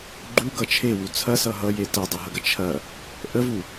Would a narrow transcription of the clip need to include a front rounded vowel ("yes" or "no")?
no